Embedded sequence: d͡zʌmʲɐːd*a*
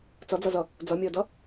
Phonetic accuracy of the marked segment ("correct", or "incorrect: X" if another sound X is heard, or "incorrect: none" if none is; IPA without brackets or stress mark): incorrect: ʌ